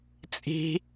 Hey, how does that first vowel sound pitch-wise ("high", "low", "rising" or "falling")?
high